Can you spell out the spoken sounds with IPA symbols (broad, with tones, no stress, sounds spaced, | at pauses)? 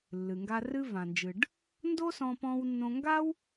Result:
lː ɨ˩ ŋ ɡ a˧ r ɨ˧ v ã˩ n d͡ʒ ɨ˩ ɖ | n d o˥ s ɔ̃˧ p ɔ̃˧ w nː õ˧ ŋ ɡ a˥ w